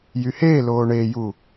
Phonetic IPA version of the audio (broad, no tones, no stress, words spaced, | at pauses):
jyheːloː ɳeːju